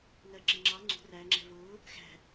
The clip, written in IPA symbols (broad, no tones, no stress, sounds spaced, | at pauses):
ŋ ɜ ǁ ɪ ŋ͡ǁ ɑ ŋ͡ǀ ṳ r æ ŋ͡ǁ ɛ̤ v ʊː | x æ̤